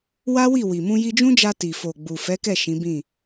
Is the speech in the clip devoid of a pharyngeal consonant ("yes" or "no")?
yes